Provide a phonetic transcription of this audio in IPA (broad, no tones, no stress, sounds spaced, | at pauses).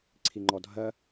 ǀʰ i ŋ͡ǃ ɔ dʱ ɜ